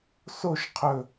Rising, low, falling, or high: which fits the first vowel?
falling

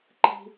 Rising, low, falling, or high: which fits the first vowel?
low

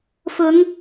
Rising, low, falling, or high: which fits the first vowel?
rising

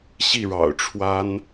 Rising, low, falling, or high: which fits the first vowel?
falling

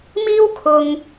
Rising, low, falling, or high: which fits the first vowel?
high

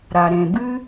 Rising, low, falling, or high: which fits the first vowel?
low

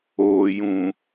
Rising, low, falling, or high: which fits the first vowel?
low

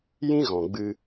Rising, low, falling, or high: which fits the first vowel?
high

